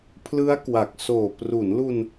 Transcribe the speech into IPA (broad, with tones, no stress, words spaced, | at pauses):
pʰlɯ˦˥a̯kwa˨˩k̚soː˨˩ pru˩˦nlu˧n